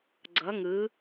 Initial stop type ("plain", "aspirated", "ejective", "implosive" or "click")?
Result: click